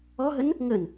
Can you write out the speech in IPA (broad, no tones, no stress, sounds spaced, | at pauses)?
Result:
ɔ ɦ ə n | ŋ ə n